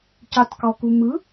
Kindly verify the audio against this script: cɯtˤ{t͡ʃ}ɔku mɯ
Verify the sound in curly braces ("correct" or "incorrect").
incorrect